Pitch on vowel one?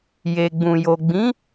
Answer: low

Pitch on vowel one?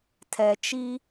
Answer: low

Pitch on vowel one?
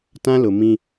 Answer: high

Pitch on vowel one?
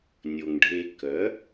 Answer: low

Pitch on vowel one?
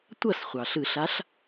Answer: falling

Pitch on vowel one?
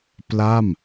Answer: falling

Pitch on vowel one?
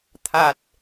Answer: low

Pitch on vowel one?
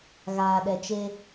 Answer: low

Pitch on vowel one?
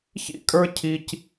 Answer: high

